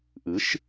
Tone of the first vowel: rising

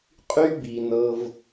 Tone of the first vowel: high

